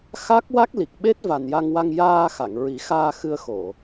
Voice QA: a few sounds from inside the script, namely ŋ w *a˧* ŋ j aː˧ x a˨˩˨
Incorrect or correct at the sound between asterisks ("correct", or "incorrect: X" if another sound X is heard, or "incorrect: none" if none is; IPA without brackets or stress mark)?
correct